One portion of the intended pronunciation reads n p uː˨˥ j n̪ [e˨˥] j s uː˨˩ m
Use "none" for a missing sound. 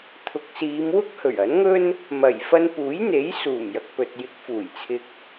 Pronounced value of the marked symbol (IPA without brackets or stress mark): e˨˥